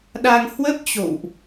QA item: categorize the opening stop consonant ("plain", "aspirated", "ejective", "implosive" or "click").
implosive